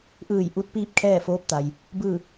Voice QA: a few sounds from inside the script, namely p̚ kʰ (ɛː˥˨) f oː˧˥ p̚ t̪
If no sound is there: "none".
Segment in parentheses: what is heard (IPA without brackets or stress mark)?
ɛː˥˨